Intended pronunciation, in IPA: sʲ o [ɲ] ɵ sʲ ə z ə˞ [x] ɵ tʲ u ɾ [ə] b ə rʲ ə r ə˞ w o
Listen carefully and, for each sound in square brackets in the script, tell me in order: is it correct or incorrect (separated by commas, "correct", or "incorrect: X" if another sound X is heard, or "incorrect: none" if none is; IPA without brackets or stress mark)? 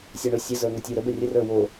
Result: incorrect: ɳ, incorrect: ŋ, correct